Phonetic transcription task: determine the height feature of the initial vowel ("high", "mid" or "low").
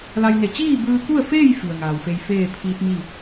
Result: low